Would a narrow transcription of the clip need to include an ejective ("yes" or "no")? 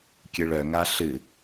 no